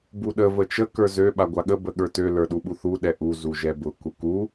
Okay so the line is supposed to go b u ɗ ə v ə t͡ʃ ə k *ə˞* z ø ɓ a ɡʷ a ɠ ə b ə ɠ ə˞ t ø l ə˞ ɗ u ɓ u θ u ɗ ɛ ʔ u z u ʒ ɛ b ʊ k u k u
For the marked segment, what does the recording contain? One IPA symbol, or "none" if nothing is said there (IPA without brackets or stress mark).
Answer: ə˞